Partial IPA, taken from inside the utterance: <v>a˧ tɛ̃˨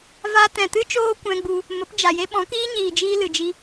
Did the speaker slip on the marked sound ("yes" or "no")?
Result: no